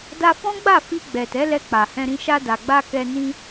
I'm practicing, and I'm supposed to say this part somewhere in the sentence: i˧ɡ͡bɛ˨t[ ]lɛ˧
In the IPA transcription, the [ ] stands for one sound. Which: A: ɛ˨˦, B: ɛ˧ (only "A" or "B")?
A